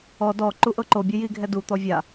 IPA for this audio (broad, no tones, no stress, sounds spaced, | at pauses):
ɔ d ɔ ǃ u ʔ ɤ ǃ o bʲ ɯ j i ɡʱ ɛ d u t̪ ɔ vʲ a